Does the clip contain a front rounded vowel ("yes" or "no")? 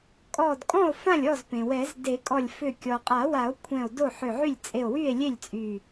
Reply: yes